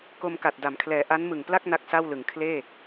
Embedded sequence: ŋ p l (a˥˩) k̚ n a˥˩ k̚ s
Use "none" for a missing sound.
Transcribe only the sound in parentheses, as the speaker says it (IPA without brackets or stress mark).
a˥˩